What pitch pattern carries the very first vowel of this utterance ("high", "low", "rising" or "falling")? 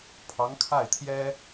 rising